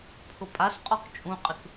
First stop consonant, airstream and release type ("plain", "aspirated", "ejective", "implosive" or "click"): aspirated